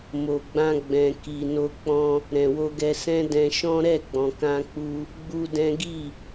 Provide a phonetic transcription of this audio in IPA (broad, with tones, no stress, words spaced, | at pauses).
mo˨ɡ͡bã˧ɡ͡bɛ̃˨ ki˨ no˧k͡pɔ̃˧ | ɾɛ̃˨wo˧ɡɛ˧sɛ̃˦ dɛ̃˧ʃɔ̃˦ ɾɛ˦˨ɡ͡bɔ̃˨kã˧k͡pu˧ | ɡ͡bu˦dɛ̃˦ ɡi˦˨